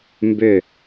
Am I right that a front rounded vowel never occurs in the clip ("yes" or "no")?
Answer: no